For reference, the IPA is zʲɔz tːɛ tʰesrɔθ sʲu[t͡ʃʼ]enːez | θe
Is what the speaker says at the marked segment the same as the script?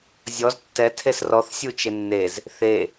no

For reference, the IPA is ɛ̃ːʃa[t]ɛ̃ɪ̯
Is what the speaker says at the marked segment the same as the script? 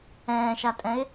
no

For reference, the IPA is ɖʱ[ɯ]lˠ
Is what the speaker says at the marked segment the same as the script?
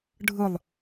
yes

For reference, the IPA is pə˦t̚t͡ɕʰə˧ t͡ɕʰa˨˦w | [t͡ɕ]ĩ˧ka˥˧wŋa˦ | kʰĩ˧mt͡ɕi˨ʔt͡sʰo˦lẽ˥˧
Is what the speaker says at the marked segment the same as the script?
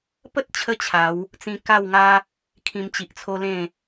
no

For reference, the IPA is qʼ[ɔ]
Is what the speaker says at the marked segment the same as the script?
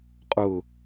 no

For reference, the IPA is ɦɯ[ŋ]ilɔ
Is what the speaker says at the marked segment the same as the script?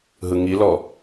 yes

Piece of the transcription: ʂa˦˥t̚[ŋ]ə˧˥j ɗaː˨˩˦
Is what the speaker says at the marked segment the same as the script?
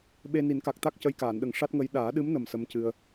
yes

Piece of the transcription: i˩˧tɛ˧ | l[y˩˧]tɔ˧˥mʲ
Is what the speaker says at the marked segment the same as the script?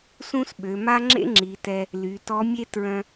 yes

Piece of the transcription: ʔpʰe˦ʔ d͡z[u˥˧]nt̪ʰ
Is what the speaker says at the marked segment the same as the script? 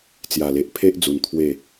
no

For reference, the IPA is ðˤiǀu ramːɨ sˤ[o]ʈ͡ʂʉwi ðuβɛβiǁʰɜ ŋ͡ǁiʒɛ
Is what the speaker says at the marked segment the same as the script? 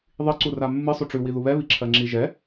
no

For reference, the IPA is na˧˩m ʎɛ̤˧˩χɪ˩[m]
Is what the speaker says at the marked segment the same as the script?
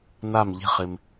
yes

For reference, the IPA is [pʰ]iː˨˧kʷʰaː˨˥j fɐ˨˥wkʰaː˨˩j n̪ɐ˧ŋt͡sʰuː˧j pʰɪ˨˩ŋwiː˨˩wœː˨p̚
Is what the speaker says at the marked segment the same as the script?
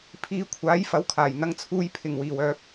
yes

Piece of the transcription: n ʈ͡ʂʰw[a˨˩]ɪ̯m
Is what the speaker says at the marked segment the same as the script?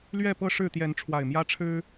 yes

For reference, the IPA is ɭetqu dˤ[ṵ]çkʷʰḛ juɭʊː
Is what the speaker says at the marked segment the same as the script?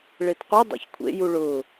no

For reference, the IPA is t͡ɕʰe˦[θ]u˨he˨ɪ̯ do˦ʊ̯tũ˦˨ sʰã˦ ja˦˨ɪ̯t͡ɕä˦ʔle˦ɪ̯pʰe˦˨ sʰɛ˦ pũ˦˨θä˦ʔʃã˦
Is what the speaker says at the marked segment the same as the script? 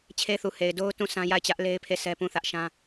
yes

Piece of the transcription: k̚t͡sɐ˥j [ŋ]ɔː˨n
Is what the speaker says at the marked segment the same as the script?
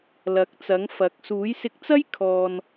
no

